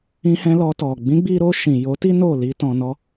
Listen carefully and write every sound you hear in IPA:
ĩ˧ h ɛ̃˧ l ɔ˧ t ɔ˨ ɡ͡b ĩ˨˦ ɡ͡b i˧ ɾ o˧ ʃ ĩ˨ j o˨˦ t i˦ n o˦˨ l i˧ t ɔ̃˨ n ɔ˧

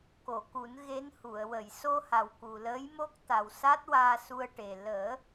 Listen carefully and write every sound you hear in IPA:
k o˨˩˨ k u˨˩˦ n ɣ e˧˥ n h u˨˩˨ ə̯ w ə˨˩˨ j s o˧ h a˨˩ w k u˨˩ l əː˧˥ j m o˦˥ k̚ t̪ a˨˩ w s a˦˥ t̚ w aː˧ s u˧ ə̯ ʈ e˨˩ l əː˨˩˦

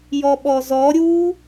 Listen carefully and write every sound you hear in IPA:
j ɔ ɓ ɔ z ɔ ɾʲ u

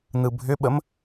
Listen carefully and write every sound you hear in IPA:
n ɯ bʱ ʏ ɓ ə m

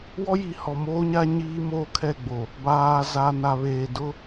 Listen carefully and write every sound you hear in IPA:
w ɔ˦ j i˨˦ h ɔ˨ m oː˦ ɲ a˦ ɲ iː˦ m oː˦ kʰ ɛ˦˨ ɡ͡b o˨ | b aː˨ z a˨ n a˨ β eː˨ d ʊ˦

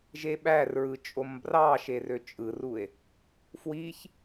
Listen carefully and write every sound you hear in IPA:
ʒ e ɓ æ r ɹ ɯ t͡ʃʼ o m b r ɑ ʃ e r ø t͡ʃʼ ɯ r u e̯ | f w i ç

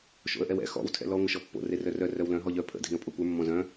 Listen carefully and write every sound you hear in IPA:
ʃ o̰ ə̯ ʔ ɛ w ɛ̰ x ɔ̰ w tʰ ɛ̰ l ɔ ŋʷ ɘ ʃ ɔ pː o̰ r e r œ r œ r œ w l œ̃ ɦ ɔ ʎ œ pʰ ə̰ dʱ ĩ ə̯ pʼ o kʷ ə˞ mː ɔ̃ z œ̃

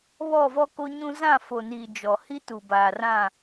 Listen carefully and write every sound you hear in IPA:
β ɔ˦˨ v ɔ˦ k o˦ ɲ ũ˦ z ã˦˨ f o˨ n iː˨ d͡ʒ ɔ˨ h i˦ t u˨ b aː˨ r ã˦˨

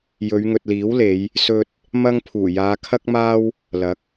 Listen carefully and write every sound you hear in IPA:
j ɵ˨˧ ɥ ŋ ɵ˨ t̚ l iː˨˥ w l e˨˧ j | s ɵ˧ t̚ | m ɐ˥ ŋ pʰ uː˨˩ j aː˨˧ kʰ ɐ˥ k̚ m aː˥ w | l ɐ˨˥ k̚

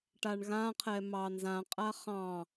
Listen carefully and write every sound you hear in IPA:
ʈ a ɳ ɣ ã qʰ ɛ m ɑ n z ã qʼ a χ ɑ̃

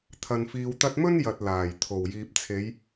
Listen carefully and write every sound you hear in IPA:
t̪ʰ ɐ˨ n f iː˨ w t̪ ɐ˧ t̚ m ɵ˥ n j ɐ˨ t̚ l aː˨˩ j t̪ʰ o˨˩ w j iː˨ p̚ t͡sʰ e˨˧ j

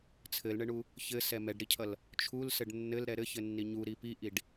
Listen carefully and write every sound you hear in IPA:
t͡sʰ ɘ l ɳ ɘ ɳ u | ç ɘ s ɛ m ɛ ɖ ɾ i cʰ ʌ l | t͡ʃʰ u l s ɘ ɖ nː ɘ l ɾ ɛ ɾ ɘ ç ɘ nː i ɲ u ɾ i p i ʔ i ɖ

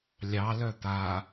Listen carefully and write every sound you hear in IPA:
lʲ ɑ l œ t̪ a

